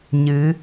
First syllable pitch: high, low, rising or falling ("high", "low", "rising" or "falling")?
rising